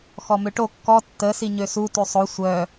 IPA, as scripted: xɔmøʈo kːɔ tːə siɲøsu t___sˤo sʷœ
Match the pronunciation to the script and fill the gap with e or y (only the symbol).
y